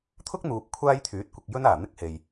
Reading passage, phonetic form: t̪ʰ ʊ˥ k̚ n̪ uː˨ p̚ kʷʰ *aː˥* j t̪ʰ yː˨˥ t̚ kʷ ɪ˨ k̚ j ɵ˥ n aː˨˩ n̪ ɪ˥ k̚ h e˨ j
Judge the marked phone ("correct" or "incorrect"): correct